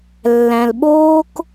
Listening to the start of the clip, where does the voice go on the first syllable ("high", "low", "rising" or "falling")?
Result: low